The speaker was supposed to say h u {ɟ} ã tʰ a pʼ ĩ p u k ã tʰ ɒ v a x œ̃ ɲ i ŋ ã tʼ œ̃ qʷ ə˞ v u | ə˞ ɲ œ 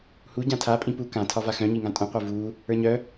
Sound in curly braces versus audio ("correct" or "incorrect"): correct